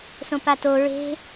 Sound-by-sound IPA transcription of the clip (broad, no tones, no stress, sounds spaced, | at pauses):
s õ p a t o ɹ e̤